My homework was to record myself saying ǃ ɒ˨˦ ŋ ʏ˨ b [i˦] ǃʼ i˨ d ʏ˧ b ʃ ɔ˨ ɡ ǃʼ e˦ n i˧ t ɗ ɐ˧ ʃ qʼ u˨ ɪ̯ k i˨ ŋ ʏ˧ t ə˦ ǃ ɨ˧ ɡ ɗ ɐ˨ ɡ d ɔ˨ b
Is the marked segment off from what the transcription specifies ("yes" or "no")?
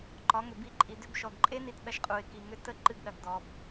yes